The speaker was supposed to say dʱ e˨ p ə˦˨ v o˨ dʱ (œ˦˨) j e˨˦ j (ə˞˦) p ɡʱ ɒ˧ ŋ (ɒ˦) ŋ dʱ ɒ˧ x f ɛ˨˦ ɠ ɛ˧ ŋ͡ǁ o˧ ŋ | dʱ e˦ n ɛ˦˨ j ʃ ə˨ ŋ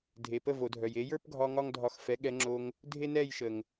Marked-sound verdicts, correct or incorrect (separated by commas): incorrect, correct, correct